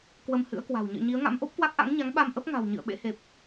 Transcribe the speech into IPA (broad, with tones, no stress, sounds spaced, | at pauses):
k w ə˧ m h ɨ̰˧˥ ə̯ k w a̤˨˩ w ɲ ə̰ː˧˨ ɲ i˨˦ ə̯ ŋ a̰˧˥ m ʔ o˦˥ p̚ k w a˦˥ k̚ ʔ a̰˧˥ ŋ ɲ a˨˦ ŋ ɓ a˧ m ʔ ə˦˥ p̚ ŋ a̤˨˩ w ɲ ɨ̰˧˨ ə̯ ɓ ḛ˧˥ h e˨˩ p̚